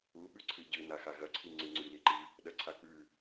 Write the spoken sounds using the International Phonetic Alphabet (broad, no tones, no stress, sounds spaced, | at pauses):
u ɓ ʉ ǀʰ ɨ ɟ ɨ n a x a ɣ ɐ ǀʰ i ŋ͡ǀ ɨ ŋ͡ǀ ʉ l i ǃ i | ɗ ɐ ǀʰ a k͡p ʉ